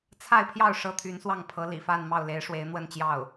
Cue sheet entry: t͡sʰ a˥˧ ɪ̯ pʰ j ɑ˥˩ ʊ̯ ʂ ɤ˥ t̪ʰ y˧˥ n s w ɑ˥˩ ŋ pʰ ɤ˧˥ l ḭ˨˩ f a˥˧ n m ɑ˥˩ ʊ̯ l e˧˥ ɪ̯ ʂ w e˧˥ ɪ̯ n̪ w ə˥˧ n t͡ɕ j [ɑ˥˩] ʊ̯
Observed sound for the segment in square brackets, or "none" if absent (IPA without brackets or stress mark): ɑ˥˩